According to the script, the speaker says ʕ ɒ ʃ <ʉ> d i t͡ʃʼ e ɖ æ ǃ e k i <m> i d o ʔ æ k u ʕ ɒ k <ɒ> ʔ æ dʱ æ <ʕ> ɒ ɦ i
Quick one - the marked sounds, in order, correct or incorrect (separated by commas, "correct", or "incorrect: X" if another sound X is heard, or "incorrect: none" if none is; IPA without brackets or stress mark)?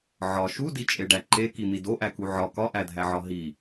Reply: incorrect: u, incorrect: n̪, correct, correct